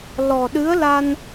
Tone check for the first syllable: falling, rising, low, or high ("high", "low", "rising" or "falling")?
low